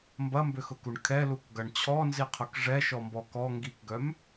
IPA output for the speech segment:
m b ɐ m b ʏ x ʊ k u ɳ kʰ ɛ l u k ɡ ɐ ɳ t͡ɕʰ ɔ n z i qʰ ʊ k ʐ ɛ ʃ ɔ m b ɔ k ɔ ŋ ɡ i k ɡ œ m

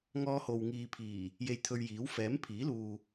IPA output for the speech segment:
ŋ ɔː˧ h o˨ w ŋ iː˨ pʰ iː˨˩ | j e˧ j t̪ʰ ɵ˧ ɥ j iː˨˥ w f ɛː˨˥ m pʰ iː˨˥ l uː˨

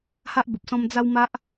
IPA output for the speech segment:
h a˦ ʔ b ə˨ p̚ s ɔ̃˧ m d͡z a˦ w m a˦ ʔ

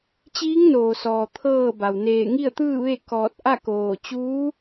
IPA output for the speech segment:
t͡ɕ iː˧˥ ŋ n oː˩ s ɔː˩ t̪ʰ ɤː˥˨ b a˩ w n eː˧˩ ŋ i˥˨ ə̯ t̪ ɯː˥˨ ʋ e˥˨ k ɔː˧˩ t̚ ʔ a˥˨ k oː˧˩ t͡ɕ uː˧˥

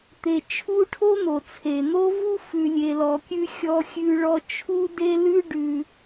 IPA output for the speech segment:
t̪ e˨ t͡ʃʰ u˥ ʈʰ o˥ n̪ o˩ t͡sʰ e˩ n̪ o˦ v u˦ f ʉ˨ lʲ e˨ l ɔ˨ kʲ ʉ˦ xʲ ɔ˦ xʲ ʉ˦ ɭ ɔ˥ t͡ʃʰ u˥ d e˥ l ʉ˥ ɖ ʉ˨

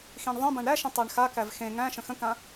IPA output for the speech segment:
x ĩ ɳ ðˤ ə̃ b ã ɳ ɾ æ ʃ ə̃ tˤ æ ɳ x a k æ v x ẽ ŋ æ̃ ʃ ə̃ x ə̃ k ã

